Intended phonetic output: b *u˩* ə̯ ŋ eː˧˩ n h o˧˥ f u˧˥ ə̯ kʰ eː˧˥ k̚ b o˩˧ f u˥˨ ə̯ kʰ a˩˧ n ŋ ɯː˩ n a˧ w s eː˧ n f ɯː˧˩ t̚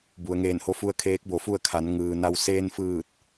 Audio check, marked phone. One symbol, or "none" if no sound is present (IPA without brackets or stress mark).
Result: u˩